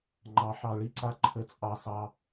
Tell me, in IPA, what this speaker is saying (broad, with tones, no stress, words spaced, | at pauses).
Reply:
ŋ͡ǃɑ˩˧ħɑ˩ɭi˥ǀa˩˧ ǃʰə˩t͡sʼɑ˩sɑ˩